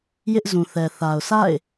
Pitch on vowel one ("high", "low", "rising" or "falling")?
high